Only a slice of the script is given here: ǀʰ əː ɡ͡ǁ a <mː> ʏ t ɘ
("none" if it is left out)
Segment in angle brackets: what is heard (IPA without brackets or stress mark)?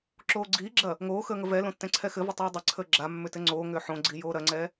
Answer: mː